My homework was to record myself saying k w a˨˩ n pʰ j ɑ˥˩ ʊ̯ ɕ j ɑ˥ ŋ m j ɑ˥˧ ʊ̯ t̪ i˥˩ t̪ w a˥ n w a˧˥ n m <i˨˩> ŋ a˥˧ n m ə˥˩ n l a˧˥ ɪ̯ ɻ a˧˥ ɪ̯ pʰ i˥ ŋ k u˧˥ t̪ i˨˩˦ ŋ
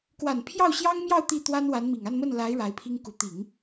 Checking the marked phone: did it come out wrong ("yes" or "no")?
no